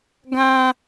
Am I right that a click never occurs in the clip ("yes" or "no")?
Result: yes